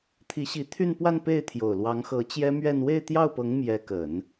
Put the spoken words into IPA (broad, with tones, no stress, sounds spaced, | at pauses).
t̪ʰ i˧˥ ɕ i˧˥ t̪ʰ y˥˧ n p w a˥˧ n p e˥˩ ɪ̯ t̪ʰ j o˨˩ ʊ̯ l w ɑ˧˥ ŋ x ɤ˧˥ t͡ɕ j ɛ˥ m ɥ ɛ˥˧ n w e˥˧ ɪ̯ t̪ j ɑ˥˩ ʊ̯ p ɤ˧˥ ŋ m j ɛ˧˥ k ə˨˩˦ n